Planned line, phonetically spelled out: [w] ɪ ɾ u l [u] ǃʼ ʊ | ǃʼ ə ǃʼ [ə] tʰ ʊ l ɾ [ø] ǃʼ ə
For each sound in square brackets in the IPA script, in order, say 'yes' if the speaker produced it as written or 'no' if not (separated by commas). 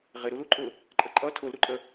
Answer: no, yes, no, no